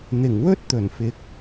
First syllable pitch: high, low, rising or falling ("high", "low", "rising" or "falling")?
low